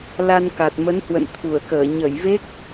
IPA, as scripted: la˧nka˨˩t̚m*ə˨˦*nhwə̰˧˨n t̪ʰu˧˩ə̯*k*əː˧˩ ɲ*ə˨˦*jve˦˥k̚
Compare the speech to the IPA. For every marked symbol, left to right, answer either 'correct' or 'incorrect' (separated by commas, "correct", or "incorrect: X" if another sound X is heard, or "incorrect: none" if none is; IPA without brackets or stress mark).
correct, correct, incorrect: ə˧˩